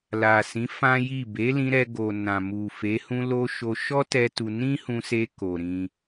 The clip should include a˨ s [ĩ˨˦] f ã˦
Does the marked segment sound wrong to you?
no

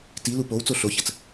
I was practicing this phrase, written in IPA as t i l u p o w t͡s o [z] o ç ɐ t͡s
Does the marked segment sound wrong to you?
yes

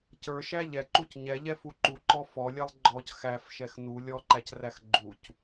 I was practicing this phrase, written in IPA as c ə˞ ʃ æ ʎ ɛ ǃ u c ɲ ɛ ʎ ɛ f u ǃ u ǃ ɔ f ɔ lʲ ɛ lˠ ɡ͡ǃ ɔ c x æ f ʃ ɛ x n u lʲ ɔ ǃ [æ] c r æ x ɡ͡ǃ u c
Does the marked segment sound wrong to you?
no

